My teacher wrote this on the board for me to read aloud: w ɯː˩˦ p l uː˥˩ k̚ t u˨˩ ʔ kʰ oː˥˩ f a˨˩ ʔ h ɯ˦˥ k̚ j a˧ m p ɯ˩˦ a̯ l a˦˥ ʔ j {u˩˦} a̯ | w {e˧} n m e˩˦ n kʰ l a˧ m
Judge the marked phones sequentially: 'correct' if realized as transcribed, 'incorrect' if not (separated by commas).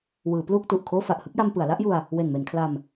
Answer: incorrect, incorrect